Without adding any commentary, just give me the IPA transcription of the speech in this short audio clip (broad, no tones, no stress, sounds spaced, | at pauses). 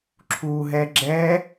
ǁʰ u ɦ ɛ ɡ͡ǁ ɛ